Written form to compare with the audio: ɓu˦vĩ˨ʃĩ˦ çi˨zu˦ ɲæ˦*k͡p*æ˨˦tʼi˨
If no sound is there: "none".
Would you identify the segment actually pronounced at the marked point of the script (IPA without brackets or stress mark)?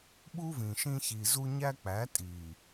k͡p